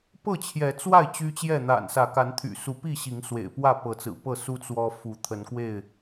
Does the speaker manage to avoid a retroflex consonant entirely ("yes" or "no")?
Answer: yes